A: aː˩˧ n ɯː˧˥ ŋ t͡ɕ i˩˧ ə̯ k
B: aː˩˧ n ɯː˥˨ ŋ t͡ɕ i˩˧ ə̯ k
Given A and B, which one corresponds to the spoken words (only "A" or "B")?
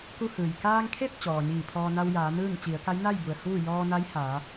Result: B